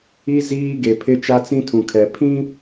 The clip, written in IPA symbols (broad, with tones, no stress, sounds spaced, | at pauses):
i˦ z iː˦ ɡ e˨ pʰ ɪ˦ t͡ʃ a˦ t͡s ĩ˦ tʰ ũ˨ kʰ ɛ˨ pʰ ĩ˦